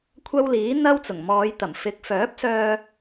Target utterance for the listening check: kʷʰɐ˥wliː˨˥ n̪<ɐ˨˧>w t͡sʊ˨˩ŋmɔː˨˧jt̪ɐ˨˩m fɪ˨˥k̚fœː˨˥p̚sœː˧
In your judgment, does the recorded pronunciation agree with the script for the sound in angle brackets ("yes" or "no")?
no